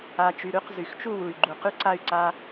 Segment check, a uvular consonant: present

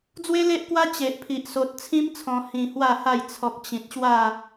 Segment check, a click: absent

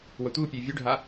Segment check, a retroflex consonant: present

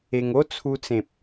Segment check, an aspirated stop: present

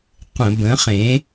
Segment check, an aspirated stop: absent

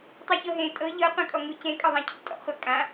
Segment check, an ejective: present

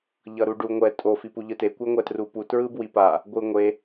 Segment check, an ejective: present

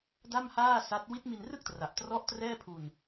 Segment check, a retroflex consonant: absent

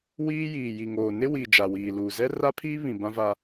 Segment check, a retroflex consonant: absent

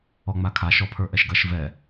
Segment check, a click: absent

